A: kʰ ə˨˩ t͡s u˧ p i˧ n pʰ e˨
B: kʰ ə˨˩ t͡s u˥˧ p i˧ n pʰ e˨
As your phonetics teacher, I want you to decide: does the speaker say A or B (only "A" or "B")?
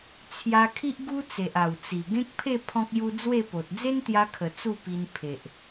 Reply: B